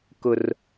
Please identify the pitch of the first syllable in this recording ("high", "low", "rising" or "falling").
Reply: high